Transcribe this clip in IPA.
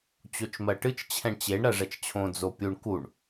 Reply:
t͡ɕot͡ʃmɜʈɨt͡ʃ t͡ɕʰɛ̃ɳt͡ɕeɳ ɾɜʐɛt͡ʃt͡ɕʰõ d͡zopʲuɳ kuɳ

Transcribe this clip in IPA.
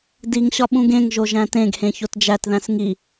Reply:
diŋɕɒ ɓũɡẽŋʒo ʒæ̃tẽɡhẽ çotd͡ʒætðæ̃s ŋi

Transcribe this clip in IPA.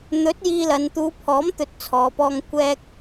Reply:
n̪ɵ˨˥t̚ jiː˧lɐ˨n t̪uː˨˧pʰɔː˨˥m t̪ɵ˧t̚t͡sʰɔː˨pɔː˧ŋ kʷɛː˧k̚

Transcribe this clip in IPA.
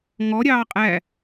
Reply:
ŋɔ ɾʲɑːqʼæ

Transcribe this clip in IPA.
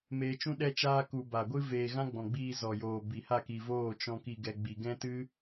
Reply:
meː˧t͡ʃũ˦ ɗɛ˦t͡ʃaː˦ ku˧ ba˨ɡʷɨ˦ veː˧ ɣã˦ɡ͡bɔ̃˨ɡ͡biː˧ zɔ˨joː˨ bi˨ha˦˨ki˨voː˦˨ t͡ʃɔ̃˧ ki˨ɡɛ˨ ɡ͡bi˨ɡɛ̃˦tɨ˦

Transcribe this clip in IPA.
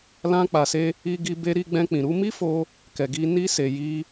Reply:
lã˧k͡pa˨se˧ | i˧ɡi˧ be˧ɾi˧ ɡ͡bɛ̃˧k͡pĩ˨ɾu˨˦ mi˦fo˧ | kɛ˨ɡi˧ ni˧se˨ ji˧

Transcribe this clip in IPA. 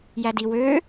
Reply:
jædi wøː

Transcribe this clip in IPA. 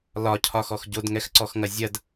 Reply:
lɒcʰɒxɔx ɟodŋɛxǀɔxŋɐ zʲɐd

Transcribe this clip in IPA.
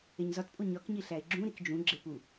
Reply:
eɲzɒtpʼo ɲɒkɲi ɬæɪ̯ɡ͡ǁũ ɾikd͡ʒũ ɡ͡ǁepu

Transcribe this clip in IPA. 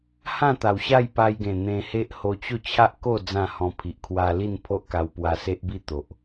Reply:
hã˥˧t̪a˨˩w ɕa˥˧jpa˧jɡẽ˨˩ n̪ẽ˧he˦ʔ ho˧t͡ɕo˥˧ t͡ɕʰa˦ʔko˥˧ d͡zã˥˧hɔ̃˧ pʰi˨ʔkʰwa˧li˥˧n pʰo˦ʔka˧w pwa˧se˦ʔbi˥˧ t̪o˨ʔ

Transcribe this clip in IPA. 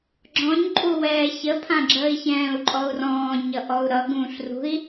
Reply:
ɡ͡ǁɔ̃ɲǃʼu wɛːçəpʰãɡ͡ǁəːi̯ çɛ̃ːu̯ǃʼɔu̯rɔ̃ː ɲʌʔɔu̯ɾʌ ɡũːɬrṳi̯

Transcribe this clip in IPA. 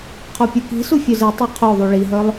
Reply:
qʰopʲuki̤su fʲœzetˤe qʰoðˤu ɭiɦœlˠ

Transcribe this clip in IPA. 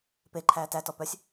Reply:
peǃʰæː tætɔ pœsʲ

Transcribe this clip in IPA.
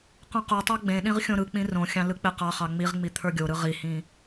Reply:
qõqotˤɑ ɡ͡bẽɗĩʁ xʲõɾɯk͡pĩ rõxʲɑ̃ lɯk͡peqɑχɑ ŋ͡miʁŋ͡mi t̪ʰə˞ɡʲoɾɯ ʁihĩ

